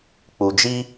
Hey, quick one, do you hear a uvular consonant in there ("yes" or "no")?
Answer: no